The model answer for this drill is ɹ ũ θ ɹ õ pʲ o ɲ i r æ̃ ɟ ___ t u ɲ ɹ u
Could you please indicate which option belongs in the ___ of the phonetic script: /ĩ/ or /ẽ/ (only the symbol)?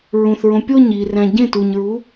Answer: ẽ